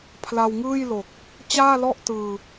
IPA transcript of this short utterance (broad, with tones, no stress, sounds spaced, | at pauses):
pʰ l a˧ w ŋ ɯː˥˩ j l o˨˩ k̚ | t͡ɕ aː˥˩ l ɔ˥˩ ʔ t ɯː˧